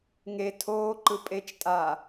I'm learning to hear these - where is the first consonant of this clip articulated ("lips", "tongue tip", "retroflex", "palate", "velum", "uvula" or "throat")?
velum